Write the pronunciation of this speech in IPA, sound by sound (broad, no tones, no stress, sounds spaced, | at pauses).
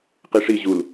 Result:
q i ʂ i ʑ u l